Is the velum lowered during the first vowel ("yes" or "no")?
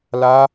no